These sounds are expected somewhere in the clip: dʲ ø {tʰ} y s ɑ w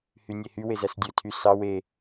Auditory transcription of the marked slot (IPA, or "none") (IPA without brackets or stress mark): tʰ